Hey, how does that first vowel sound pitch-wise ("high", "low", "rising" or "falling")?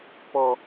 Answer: low